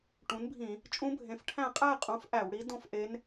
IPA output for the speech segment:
ʈũ˩˥nbʱĩ˧˩˧ | t͡ʃʼũ˧˥bʱẽ˩˥fʈʰæ̃˥˨ qʼæ˥˨qʼũ˩˥f ʔæ˧˩˧wɽi˧˥ dõ˥˨fʔe˧˥n

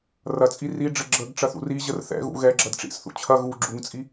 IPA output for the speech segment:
rɐt͡sʼi riɖ͡ʐɘ ɡ͡ǁəɡ ʈ͡ʂɐθṵriʑər θɛ̰ɣṵ ɣɛ ɡ͡ǁɐdʈ͡ʂḭsθṵ t͡ɕʰɐ ɣu ɡ͡ǁuŋt͡sʼi

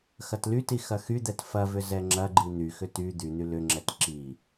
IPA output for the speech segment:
xɐtlyti xɐxyd̪ɛt fɐvʏ zɛŋ͡ǁɐɡ͡ǃi n̪yxʏ ty d̪yn̪y lʏŋ͡ǁɛt ǁi

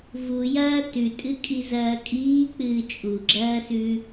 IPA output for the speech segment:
vujɐː tʉtʼɨkʼizɐː kʼiːk͡pɨː t͡ʃʼuɡ͡ǁɐːsʉ

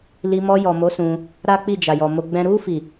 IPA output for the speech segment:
li˧ mɔ˧jɔ˨mo˨˦ sũ˧ | ɾa˦k͡pi˦˨ d͡ʒa˨jɔ˨mo˧ ɡ͡bɛ̃˦ ɾu˦ fi˦˨

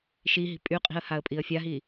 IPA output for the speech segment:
ʃi ɦi̤pʼyqʼi̤ə̯ haə̯pʼiə̯fʲaɦi

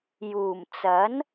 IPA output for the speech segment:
juː˨˩mt͡sɐ˨˥n

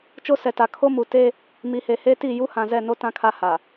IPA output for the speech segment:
t͡ʃo˦sɛ˨ta˨ kʰo˦mu˨ te˦ | mi˨he˨he˦ti˦˨ ju˦hã˨ zɛ˦˨no˦ tã˦kʰa˦ha˨

